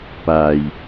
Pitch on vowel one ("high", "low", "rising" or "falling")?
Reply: low